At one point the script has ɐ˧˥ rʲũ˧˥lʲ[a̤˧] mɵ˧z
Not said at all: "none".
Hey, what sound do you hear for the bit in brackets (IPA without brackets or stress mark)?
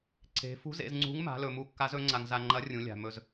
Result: a̤˧